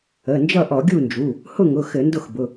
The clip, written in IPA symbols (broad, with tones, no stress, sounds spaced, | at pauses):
ə˩˧˩ n d͡ʒ ʌ˥˨ ʔ ɔ˧˩˧ ɡʲ u˥˨ n d͡ʒ u˩˧˩ | h ʊ˥˨ ŋ ʊ˩˧˩ x ɘ˧˩˧ n d ʊ˥˨ x b ʊ˩˧˩